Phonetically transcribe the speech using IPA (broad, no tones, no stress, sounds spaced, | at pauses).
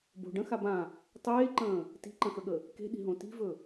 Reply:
b o̤ ɖ ə̃ x a b ã | tˤ eː ǃ ə̃ː | t i̤ ǃ ə̃ x ə ɠ ə | k e̤ ɗ i̤ ɦ õ t i̤ v ɵ